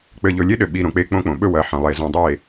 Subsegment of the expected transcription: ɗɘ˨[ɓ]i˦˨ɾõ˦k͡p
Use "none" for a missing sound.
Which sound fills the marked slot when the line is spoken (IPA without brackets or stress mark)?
ɓ